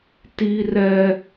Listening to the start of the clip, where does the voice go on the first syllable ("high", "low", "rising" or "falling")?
high